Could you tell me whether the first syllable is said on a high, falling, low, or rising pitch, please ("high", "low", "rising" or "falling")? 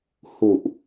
low